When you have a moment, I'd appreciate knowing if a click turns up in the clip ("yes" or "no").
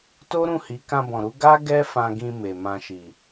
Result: no